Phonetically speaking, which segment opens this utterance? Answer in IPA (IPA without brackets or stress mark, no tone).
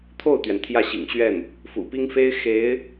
t̪ʰ